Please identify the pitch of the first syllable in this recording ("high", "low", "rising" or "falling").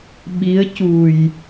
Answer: rising